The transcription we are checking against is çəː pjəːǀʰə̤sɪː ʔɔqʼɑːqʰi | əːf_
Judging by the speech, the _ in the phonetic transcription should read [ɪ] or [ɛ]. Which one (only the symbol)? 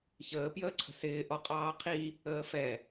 ɛ